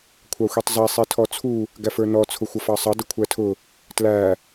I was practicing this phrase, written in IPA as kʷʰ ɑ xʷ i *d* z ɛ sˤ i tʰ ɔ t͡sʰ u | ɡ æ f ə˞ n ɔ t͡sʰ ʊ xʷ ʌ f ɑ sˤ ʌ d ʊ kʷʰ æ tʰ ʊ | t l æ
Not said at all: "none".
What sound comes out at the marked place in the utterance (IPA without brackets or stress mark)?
tˤ